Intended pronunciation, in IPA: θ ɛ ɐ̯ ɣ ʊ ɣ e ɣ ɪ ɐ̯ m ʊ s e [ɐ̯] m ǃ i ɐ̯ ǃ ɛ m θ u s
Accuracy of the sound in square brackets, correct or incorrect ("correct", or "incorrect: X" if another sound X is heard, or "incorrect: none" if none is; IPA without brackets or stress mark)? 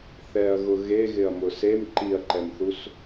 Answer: incorrect: none